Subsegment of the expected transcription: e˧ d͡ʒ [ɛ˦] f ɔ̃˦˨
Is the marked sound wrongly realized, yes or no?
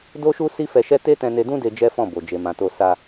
no